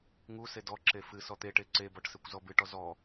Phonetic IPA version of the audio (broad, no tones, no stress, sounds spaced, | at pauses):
ŋ u s e d ɔ ǁ e f ɨ s ɔ t̪ e ʈ e ǀ e b ɔ ʈ s e kʷ z ɔ b ɨ ʈ ɔ z ɔ